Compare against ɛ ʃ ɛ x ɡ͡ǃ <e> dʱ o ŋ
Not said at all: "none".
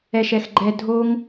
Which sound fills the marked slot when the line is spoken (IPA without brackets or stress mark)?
ɛ